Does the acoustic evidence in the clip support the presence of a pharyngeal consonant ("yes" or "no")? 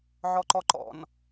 yes